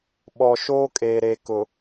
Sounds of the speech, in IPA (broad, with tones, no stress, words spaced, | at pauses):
ɓɔ˨ʃoː˦kʼeː˨ɾe˨ kʊ˨